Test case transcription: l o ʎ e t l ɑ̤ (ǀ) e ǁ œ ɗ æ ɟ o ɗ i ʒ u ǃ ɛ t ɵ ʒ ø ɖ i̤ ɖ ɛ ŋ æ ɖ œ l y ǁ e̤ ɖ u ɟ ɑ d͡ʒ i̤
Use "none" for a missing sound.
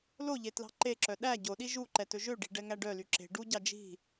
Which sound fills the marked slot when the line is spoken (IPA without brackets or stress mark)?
ǃ